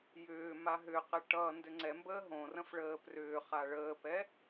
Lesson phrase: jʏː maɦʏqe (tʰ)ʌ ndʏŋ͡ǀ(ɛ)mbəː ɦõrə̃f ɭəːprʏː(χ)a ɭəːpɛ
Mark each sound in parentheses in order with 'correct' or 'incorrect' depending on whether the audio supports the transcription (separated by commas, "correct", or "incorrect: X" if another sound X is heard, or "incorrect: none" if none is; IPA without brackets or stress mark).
incorrect: ʈ, correct, correct